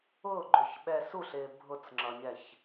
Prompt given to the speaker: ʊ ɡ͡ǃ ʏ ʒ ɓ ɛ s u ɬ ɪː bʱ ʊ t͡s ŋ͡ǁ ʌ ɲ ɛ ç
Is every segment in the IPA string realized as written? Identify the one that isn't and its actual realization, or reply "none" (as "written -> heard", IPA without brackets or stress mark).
ʒ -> ç